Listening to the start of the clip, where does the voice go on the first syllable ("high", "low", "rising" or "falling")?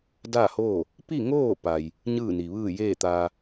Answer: falling